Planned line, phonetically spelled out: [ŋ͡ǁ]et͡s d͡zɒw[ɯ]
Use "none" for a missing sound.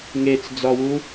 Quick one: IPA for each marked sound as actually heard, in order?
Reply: ŋ, u

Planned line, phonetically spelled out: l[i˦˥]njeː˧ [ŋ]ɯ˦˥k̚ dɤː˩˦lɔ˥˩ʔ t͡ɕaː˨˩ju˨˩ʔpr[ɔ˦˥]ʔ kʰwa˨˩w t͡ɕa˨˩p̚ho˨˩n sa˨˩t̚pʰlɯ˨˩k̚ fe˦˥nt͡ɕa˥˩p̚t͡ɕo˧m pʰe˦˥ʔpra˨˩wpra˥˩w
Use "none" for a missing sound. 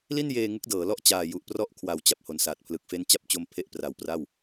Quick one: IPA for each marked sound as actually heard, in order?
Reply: i˥˩, ŋ, ɔ˦˥

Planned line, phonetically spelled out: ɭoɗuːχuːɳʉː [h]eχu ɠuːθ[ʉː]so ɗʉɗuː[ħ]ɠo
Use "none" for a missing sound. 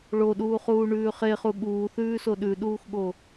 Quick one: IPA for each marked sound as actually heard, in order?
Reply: χ, ʉː, x

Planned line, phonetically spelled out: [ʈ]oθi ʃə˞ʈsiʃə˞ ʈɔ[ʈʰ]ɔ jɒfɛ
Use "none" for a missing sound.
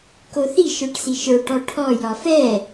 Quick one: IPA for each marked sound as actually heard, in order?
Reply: k, ʈʰ

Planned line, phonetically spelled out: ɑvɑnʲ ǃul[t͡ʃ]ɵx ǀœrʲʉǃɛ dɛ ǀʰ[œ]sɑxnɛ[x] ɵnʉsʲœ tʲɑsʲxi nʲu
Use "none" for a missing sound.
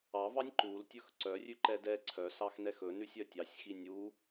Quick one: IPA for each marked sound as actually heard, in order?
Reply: tʲ, œ, x

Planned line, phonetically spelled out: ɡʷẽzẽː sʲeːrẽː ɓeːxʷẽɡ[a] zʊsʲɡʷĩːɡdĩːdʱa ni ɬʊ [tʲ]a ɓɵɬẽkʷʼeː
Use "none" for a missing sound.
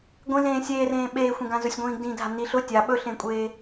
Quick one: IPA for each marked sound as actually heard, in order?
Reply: ã, tʲ

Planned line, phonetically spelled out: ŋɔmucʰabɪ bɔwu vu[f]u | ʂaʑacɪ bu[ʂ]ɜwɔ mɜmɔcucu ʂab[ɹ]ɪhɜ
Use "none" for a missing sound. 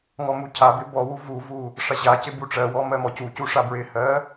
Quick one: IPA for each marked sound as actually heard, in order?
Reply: v, ʈ͡ʂ, ɹ

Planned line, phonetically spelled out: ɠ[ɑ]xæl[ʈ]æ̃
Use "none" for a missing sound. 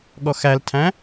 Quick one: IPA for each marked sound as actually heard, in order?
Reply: ɔ, tʰ

